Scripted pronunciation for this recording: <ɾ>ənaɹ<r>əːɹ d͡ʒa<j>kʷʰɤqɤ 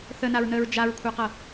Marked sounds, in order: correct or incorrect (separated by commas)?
incorrect, incorrect, incorrect